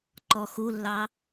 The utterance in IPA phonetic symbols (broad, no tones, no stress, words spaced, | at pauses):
ǃɔxulːɑ